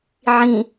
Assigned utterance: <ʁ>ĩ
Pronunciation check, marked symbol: incorrect: ʕ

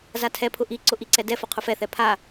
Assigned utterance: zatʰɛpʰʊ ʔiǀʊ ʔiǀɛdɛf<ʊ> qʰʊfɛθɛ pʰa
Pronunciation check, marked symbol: correct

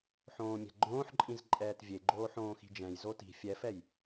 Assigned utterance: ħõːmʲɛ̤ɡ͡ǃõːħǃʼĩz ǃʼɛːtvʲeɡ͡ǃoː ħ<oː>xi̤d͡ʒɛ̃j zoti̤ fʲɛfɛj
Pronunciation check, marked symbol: incorrect: õː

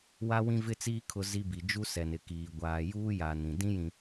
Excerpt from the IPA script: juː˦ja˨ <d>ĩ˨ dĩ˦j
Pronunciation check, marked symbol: incorrect: n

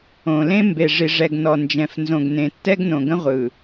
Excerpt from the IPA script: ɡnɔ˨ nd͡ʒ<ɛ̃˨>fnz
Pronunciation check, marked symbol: correct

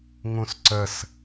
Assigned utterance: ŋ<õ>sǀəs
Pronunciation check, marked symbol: incorrect: ũ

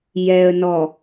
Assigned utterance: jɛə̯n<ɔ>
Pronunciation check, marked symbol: correct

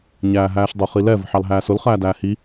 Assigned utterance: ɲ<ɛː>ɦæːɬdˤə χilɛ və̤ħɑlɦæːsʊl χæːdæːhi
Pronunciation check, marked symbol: incorrect: æː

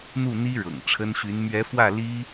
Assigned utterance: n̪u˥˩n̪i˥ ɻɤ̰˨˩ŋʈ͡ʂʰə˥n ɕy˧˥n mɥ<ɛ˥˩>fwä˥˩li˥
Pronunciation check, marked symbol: incorrect: ɛ˧˥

